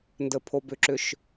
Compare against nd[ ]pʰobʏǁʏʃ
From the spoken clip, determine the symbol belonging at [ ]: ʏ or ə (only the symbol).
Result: ə